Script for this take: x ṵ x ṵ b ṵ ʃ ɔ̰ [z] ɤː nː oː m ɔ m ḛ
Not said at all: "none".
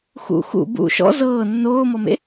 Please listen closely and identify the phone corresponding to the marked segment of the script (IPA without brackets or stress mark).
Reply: z